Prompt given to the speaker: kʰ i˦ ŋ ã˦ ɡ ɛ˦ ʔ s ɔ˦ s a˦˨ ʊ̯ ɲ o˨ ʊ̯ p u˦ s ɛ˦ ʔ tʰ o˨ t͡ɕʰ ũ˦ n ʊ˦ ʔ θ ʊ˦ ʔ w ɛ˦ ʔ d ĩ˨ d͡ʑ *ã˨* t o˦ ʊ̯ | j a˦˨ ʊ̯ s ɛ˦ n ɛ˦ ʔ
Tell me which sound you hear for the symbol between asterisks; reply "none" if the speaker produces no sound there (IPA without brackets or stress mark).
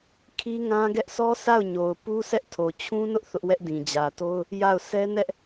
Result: ä˨